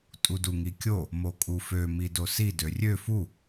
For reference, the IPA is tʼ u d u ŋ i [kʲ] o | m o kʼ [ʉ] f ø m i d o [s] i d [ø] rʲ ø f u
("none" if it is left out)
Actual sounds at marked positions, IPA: kʲ, u, s, ø

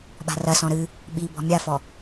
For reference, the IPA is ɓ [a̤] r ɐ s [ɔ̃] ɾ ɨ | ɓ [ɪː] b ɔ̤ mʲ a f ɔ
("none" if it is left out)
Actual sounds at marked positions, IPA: a̤, ɔ̃, iː

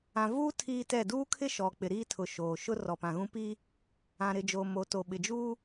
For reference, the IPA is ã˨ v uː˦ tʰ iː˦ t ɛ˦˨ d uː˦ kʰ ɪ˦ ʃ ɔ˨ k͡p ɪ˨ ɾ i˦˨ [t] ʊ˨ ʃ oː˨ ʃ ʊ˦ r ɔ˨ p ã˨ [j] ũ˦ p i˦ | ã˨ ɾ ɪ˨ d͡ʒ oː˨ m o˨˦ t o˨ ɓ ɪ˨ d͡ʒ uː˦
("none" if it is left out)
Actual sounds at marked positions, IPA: tʰ, ɣ

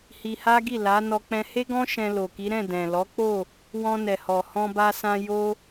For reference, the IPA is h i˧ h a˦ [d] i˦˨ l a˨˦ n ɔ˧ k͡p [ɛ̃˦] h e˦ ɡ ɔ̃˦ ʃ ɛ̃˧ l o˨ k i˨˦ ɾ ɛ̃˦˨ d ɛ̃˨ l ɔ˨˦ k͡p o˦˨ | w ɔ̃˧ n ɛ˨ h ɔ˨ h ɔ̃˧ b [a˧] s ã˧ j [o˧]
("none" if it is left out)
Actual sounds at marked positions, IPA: ɡ, ɛ̃˧, a˧, o˦

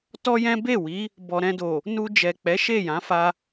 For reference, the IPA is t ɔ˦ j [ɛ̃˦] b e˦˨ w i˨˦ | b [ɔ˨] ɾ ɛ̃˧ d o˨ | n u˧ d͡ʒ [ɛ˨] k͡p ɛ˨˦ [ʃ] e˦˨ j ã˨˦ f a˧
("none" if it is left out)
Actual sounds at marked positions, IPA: ɛ̃˦, ɔ˨, ɛ˨, ʃ

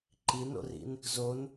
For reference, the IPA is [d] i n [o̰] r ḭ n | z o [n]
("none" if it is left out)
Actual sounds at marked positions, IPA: ǃ, o̰, n

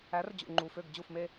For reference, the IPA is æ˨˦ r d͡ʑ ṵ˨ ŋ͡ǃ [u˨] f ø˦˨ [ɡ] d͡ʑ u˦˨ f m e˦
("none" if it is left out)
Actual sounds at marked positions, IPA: u˨, ɡ

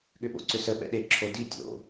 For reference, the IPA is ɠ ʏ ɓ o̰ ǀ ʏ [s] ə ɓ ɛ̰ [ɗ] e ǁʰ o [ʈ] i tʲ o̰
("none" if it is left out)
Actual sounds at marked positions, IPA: s, ɗ, d

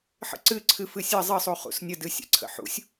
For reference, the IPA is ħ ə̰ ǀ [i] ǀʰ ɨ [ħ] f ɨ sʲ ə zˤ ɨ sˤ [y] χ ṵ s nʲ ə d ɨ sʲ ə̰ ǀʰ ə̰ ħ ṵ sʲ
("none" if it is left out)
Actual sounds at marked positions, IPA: ɨ, none, u

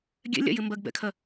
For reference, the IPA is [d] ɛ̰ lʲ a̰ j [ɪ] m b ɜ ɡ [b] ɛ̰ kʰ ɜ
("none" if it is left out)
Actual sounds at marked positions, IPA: ɡʲ, ɪ, b

